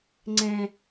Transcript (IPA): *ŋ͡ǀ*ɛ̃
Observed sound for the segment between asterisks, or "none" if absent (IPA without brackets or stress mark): ŋ͡ǀ